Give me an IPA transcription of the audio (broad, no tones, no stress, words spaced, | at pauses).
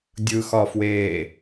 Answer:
dʲɯxɒfweː